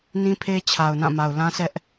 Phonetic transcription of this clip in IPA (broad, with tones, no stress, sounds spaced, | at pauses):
n ĩ˦ pʰ e˦ t͡ɕʰ a˨ ʊ̯ n ã˦˨ m a˨ ʊ̯ l ã˦ s ɛ˦ ʔ